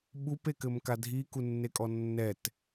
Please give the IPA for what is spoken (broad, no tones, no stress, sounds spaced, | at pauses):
ɓ u p e k ɘ m k a dʱ i k u nː e kʼ ɔ nː ɛ t